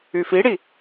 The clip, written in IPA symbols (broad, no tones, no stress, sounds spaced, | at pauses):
y f i ɽ i